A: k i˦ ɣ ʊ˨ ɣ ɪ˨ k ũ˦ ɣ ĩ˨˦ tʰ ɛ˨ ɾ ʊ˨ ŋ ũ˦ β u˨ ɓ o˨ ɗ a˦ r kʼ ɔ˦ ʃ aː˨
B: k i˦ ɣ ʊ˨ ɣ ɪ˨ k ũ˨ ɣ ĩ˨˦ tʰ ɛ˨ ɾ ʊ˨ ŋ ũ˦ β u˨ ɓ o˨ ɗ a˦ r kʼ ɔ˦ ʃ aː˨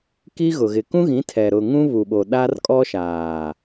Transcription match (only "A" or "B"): A